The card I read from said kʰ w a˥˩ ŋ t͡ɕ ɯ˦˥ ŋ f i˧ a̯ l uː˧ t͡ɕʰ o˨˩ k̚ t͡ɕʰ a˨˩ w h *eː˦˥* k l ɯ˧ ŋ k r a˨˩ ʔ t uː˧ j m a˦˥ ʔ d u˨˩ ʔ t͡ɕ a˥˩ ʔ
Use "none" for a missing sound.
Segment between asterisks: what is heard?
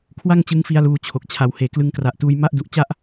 eː˨˩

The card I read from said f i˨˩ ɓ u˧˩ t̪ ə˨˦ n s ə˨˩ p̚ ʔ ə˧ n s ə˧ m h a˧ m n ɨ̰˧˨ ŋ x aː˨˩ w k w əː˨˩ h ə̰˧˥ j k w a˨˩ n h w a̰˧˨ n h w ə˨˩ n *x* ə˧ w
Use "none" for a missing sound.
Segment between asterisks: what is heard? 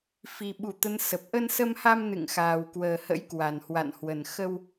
x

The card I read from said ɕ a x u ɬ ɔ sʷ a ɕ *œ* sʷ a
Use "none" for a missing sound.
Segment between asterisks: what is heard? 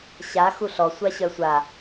œ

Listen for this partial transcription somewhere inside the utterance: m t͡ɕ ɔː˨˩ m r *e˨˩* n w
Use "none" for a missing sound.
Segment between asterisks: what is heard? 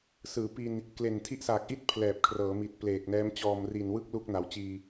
i˨˩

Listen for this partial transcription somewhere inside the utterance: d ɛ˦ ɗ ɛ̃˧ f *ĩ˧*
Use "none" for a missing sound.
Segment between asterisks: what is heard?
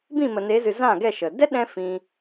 ĩ˧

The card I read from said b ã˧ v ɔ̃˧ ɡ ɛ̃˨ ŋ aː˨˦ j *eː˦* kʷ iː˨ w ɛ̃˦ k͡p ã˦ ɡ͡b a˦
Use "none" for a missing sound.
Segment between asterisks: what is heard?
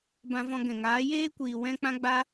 eː˦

